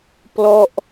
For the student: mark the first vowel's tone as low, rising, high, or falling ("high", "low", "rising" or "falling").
falling